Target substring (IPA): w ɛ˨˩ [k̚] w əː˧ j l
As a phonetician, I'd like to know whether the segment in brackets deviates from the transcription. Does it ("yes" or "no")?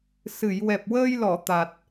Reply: yes